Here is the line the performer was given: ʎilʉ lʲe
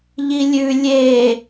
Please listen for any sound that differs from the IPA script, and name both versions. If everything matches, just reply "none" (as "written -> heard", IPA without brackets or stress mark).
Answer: l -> lʲ